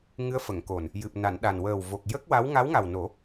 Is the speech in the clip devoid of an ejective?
yes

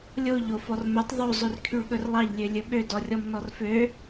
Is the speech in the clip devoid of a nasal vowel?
yes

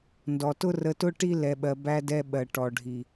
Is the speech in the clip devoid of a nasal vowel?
yes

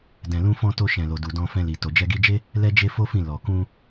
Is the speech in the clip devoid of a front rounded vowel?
yes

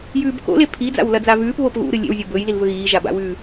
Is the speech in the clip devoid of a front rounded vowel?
yes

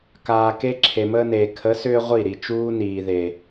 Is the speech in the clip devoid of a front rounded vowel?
no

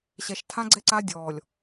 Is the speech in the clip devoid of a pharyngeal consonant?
yes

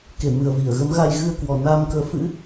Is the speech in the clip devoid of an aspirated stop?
yes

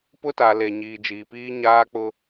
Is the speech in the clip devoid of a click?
yes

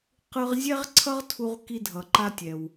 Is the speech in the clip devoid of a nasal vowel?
yes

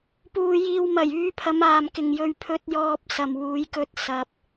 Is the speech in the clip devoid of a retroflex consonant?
yes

